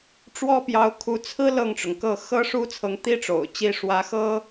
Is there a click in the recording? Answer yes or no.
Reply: no